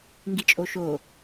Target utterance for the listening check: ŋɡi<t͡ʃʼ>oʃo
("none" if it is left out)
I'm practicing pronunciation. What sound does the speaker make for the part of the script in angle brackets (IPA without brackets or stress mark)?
t͡ʃʼ